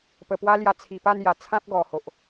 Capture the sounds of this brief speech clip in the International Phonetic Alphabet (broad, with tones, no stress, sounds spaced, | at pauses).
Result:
p ə˨˩ p w a˦ l j a˧ t͡sʰ i˨˩ p a˥˧ n j a˨˩ t͡sʰ ã˦ p̚ ɡ ɔ˨˩ h o˨ ʔ